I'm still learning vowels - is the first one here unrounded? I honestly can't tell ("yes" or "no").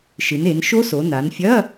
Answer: yes